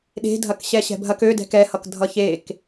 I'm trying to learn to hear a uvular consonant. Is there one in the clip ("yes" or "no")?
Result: no